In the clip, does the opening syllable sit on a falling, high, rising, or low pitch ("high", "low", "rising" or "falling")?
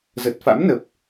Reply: low